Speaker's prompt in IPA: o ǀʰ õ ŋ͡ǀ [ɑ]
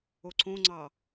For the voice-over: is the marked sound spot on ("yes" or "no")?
yes